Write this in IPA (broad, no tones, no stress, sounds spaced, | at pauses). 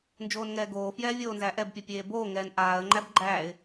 n d͡ʒ oː n ŋ ɛː ɡ oː f j ɛː vʲ oː n z æː ʔ ɛ b pʲ ɛ pʲ eː b oː ŋ ɛː n ʔ aː ə̯ ŋ͡ǃ æ b ɡ͡ǃ æː ɪ̯